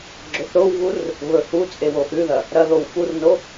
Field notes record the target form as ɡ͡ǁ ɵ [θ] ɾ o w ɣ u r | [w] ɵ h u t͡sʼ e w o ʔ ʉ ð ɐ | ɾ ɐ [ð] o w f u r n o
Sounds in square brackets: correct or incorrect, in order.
correct, incorrect: β, correct

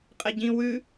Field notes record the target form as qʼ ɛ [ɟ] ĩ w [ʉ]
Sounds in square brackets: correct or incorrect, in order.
correct, correct

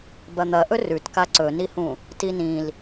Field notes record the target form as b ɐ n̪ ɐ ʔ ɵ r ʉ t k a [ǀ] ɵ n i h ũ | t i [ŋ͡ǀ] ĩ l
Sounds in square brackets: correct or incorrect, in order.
correct, incorrect: n

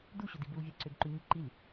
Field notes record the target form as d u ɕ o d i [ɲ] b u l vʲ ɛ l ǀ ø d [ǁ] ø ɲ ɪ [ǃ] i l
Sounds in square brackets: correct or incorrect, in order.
incorrect: none, incorrect: ǃ, correct

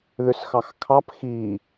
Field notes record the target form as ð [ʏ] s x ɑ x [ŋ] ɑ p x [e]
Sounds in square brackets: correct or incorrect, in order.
correct, incorrect: kʰ, incorrect: i

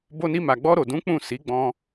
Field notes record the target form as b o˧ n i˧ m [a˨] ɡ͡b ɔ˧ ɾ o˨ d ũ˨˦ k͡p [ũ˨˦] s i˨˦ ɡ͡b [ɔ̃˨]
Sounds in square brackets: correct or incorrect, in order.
correct, incorrect: ũ˦˨, incorrect: ɔ̃˧

